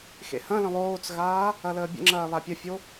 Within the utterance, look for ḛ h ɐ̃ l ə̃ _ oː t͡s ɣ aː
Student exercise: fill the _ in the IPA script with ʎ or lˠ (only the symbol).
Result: lˠ